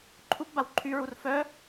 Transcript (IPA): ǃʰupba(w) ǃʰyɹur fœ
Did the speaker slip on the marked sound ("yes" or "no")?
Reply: no